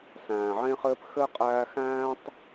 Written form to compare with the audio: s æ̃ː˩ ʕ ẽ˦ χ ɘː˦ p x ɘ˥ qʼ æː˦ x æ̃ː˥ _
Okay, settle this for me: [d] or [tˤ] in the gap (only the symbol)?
tˤ